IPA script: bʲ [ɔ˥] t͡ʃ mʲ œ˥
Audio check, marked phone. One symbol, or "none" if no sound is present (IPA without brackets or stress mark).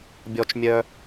ɔ˥